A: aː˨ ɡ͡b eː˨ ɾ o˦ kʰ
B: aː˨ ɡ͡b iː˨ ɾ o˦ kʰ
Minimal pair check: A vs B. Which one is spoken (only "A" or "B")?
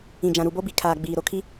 B